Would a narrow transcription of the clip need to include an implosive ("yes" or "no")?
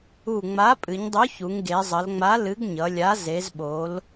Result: yes